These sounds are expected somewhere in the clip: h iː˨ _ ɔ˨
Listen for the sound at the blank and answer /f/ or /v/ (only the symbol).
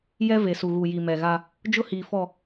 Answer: f